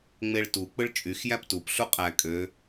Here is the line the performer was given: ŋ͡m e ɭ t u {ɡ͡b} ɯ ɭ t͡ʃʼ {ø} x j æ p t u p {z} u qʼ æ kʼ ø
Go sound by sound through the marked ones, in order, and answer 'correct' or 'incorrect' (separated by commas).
incorrect, incorrect, incorrect